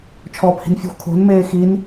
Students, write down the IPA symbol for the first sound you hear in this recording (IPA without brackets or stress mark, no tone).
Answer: t͡ʃʰ